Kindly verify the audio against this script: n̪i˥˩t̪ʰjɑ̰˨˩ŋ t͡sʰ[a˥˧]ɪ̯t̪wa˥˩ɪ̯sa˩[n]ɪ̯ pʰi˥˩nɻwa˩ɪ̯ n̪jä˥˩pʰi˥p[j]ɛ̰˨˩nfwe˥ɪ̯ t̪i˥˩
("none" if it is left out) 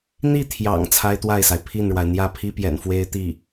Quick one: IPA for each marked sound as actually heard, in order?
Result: a˥, none, j

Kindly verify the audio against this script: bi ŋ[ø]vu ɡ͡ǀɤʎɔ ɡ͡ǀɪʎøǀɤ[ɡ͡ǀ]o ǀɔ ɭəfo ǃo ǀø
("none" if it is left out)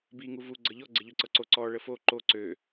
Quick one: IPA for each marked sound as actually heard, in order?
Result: u, ǀ

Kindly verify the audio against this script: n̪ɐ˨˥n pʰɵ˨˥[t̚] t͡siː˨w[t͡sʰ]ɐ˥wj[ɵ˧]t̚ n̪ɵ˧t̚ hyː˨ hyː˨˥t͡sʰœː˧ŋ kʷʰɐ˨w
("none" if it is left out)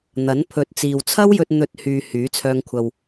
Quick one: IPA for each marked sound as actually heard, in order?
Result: t̚, t͡sʰ, ɵ˧

